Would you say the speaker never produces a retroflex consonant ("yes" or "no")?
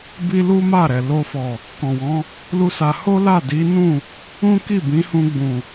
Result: yes